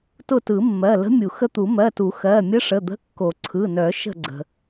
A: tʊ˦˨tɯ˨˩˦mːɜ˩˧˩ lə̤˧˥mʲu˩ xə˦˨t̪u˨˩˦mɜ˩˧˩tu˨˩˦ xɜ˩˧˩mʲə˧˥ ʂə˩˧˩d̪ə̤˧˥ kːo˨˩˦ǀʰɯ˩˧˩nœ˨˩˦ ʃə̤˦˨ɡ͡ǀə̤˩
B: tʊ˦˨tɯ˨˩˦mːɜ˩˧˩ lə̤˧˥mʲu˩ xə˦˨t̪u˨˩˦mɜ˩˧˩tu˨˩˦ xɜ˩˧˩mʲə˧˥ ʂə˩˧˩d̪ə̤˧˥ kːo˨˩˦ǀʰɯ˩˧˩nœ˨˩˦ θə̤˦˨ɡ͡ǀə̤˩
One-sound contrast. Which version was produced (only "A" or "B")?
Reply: A